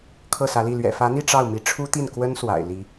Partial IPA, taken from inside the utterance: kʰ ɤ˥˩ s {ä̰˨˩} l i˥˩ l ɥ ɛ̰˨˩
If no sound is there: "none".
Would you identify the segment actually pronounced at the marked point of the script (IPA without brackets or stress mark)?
ä˧˥